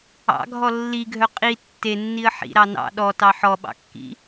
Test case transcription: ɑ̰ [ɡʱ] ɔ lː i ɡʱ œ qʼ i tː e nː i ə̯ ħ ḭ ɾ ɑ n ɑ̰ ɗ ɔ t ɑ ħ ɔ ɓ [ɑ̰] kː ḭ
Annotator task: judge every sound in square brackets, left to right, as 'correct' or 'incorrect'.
correct, correct

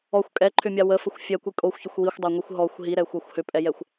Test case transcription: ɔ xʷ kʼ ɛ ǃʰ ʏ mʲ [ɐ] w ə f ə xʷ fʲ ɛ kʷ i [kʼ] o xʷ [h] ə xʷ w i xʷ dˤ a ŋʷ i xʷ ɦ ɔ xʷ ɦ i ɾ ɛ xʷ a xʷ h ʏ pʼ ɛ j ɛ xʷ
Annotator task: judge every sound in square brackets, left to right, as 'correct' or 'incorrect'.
incorrect: a, correct, incorrect: ç

